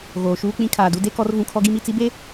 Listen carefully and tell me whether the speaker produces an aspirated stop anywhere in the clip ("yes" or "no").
yes